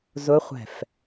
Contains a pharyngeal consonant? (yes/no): no